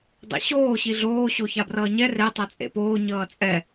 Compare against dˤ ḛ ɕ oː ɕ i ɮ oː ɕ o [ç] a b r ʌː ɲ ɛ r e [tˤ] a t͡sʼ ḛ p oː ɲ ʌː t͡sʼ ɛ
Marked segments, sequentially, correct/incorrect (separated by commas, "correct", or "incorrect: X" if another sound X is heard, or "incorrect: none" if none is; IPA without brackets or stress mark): correct, correct